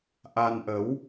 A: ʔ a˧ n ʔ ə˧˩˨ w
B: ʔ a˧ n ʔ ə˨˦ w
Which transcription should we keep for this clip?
B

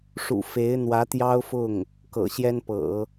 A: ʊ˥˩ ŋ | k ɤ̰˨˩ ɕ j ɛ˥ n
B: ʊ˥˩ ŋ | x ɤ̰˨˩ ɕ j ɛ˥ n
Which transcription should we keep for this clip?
A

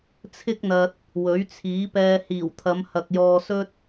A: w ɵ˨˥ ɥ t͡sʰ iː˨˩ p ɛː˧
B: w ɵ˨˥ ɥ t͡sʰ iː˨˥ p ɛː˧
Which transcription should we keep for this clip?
B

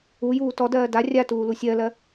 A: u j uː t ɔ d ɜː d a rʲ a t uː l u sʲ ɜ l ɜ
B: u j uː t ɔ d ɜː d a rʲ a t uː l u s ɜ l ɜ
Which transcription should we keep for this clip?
A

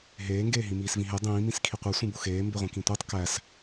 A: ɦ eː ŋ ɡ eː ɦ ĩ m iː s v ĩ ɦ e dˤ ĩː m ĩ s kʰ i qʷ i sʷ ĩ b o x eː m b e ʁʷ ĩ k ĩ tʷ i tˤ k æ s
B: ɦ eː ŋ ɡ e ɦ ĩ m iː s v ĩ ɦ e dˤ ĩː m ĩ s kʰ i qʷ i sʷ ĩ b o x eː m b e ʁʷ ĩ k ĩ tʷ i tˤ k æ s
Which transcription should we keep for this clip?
A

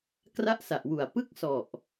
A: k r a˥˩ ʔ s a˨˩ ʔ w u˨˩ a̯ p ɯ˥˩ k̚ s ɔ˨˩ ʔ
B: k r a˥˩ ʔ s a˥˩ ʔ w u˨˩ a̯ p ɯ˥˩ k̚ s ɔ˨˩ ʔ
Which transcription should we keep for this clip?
A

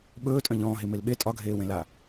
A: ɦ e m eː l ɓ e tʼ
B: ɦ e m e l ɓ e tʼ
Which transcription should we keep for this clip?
B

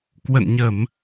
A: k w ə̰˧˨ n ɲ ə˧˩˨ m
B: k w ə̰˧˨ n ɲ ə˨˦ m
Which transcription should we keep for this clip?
A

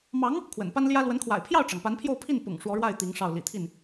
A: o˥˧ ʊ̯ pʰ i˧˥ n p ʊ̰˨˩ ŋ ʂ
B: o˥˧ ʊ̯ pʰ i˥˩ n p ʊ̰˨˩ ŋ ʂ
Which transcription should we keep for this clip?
B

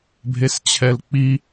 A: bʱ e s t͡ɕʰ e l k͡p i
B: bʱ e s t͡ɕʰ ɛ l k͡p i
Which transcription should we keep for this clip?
B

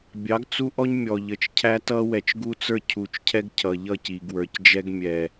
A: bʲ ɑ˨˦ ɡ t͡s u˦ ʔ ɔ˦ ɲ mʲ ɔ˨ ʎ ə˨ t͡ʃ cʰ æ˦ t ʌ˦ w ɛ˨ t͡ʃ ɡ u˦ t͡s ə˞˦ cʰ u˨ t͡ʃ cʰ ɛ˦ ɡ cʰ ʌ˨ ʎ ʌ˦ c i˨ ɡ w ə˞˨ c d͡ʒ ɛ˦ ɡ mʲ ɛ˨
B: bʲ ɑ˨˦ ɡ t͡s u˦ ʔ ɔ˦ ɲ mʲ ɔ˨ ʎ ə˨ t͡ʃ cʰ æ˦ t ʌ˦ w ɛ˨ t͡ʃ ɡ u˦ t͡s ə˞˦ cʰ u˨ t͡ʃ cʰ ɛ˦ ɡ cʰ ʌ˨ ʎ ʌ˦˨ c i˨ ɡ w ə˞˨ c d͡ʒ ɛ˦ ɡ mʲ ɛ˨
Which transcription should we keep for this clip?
B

